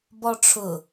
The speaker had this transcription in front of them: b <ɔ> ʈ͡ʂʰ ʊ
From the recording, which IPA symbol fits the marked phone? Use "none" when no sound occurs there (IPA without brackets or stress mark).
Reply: ɔ